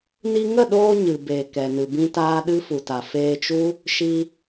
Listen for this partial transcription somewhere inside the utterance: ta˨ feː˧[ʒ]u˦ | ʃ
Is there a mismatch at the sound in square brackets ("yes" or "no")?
yes